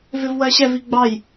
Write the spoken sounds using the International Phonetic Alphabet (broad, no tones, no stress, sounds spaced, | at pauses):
v ɪ v w ɜ ɕ ɛ v i ɡ͡b ɑ j